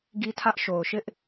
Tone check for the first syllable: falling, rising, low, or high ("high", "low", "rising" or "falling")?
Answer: high